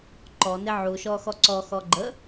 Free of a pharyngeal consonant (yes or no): no